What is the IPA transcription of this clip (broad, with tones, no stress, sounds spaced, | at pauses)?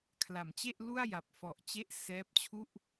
kʰ l a˩˦ m t͡ɕ e˥˩ ʔ l u˥˩ a̯ j a˨˩ p̚ f ɔ˨˩ ʔ t͡ɕ e˦˥ ʔ s ɛː˦˥ p̚ t͡ɕʰ u˥˩ ʔ